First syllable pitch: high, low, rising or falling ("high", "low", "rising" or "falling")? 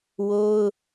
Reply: high